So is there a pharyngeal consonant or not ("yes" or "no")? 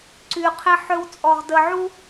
yes